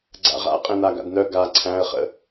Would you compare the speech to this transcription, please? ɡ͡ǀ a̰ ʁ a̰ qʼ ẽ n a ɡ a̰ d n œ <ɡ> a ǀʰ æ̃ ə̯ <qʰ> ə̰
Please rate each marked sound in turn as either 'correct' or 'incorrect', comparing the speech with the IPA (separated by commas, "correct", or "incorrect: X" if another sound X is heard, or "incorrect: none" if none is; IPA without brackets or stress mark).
correct, incorrect: χ